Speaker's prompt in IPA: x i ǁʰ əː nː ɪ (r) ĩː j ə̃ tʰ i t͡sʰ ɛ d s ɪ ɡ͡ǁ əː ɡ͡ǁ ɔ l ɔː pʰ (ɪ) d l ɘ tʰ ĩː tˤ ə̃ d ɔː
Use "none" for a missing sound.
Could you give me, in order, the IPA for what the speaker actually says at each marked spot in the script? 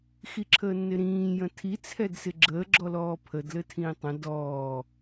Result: ɾ, ə

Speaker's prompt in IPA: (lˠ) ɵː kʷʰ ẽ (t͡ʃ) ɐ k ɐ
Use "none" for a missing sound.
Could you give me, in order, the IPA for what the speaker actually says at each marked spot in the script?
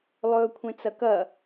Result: lˠ, t͡s

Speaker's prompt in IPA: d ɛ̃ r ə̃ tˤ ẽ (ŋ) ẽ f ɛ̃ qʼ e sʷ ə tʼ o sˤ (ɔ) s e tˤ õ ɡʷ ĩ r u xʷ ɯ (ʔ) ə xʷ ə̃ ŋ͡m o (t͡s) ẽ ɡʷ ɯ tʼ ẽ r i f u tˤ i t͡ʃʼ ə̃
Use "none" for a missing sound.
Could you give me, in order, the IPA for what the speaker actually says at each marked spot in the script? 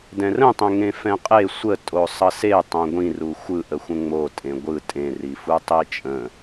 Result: ŋ, ʌ, ʔ, tʼ

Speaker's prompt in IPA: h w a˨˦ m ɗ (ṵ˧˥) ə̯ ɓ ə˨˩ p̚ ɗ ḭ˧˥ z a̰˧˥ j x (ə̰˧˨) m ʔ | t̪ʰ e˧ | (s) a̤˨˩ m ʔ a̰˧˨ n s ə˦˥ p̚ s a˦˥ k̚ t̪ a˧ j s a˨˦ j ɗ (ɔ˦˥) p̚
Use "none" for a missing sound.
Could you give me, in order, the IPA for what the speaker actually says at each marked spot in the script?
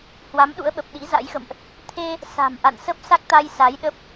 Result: ṵ˧˥, ə̰˧˨, s, ə˦˥

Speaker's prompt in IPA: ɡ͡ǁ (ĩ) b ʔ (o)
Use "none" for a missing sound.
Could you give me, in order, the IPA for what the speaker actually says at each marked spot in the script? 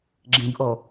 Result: ĩ, o

